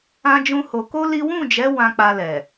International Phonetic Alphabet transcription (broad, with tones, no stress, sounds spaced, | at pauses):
ã˦ d͡ʒ ũ˦ h o˧ k o˦ l i˦ w ũ˦˨ d͡ʒ ɛ˨˦ w ã˧ k͡p a˧ l ɛ˨